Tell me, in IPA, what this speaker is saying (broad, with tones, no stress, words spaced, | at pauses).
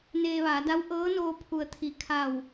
neː˧ʋaː˩˧ da˧˥w ʔɤː˧˥noː˧ pʰu˩ə̯ t̪ʰi˩ kʰa˧˩w